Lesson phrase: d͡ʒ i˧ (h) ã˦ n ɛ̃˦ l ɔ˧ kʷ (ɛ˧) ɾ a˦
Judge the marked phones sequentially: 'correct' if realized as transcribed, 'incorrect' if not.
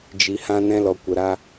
correct, incorrect: ə˧

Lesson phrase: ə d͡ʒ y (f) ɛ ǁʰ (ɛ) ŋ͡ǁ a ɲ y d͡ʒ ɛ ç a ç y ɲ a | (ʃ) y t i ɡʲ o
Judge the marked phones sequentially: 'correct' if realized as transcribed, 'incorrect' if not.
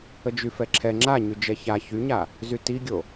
correct, correct, incorrect: z

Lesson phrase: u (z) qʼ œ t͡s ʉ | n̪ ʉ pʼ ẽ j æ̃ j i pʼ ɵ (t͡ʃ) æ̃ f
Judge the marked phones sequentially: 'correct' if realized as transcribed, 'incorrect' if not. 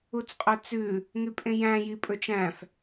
incorrect: t͡s, correct

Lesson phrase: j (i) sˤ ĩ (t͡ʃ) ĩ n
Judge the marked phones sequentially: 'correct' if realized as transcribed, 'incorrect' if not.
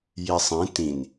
correct, incorrect: t

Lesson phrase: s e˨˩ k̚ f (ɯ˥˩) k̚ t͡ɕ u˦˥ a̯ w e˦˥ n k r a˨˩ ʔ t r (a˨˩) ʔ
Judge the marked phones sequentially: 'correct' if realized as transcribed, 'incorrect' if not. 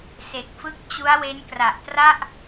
correct, incorrect: a˥˩

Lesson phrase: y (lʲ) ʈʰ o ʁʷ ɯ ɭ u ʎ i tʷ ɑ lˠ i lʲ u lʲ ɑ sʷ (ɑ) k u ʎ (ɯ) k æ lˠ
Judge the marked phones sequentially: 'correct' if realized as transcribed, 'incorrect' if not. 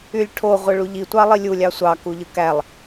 correct, correct, correct

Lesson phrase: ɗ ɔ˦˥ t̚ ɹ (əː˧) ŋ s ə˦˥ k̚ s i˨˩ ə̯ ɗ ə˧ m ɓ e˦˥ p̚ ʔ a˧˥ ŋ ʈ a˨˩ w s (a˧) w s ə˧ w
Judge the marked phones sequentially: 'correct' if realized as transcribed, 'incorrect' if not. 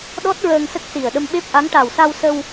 correct, correct

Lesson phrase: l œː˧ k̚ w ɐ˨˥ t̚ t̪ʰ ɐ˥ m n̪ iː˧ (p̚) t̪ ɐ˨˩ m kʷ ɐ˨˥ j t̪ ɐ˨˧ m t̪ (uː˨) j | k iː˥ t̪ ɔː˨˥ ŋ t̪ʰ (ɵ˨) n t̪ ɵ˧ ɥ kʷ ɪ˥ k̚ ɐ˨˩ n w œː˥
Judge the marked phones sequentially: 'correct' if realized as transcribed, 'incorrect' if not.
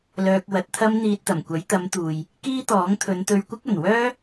incorrect: t̚, correct, incorrect: ɵ˨˧

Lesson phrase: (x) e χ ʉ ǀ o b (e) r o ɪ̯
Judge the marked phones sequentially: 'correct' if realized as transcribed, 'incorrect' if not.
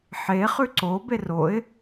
incorrect: ħ, correct

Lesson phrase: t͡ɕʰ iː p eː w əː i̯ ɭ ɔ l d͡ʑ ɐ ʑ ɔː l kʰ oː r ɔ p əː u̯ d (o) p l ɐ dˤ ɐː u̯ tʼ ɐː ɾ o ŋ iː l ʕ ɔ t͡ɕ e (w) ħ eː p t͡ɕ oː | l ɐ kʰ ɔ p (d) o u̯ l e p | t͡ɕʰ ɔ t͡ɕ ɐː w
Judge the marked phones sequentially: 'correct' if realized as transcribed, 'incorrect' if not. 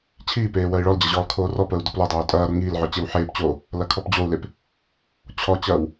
correct, correct, incorrect: d͡ʑ

